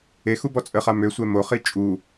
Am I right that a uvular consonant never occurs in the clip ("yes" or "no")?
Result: no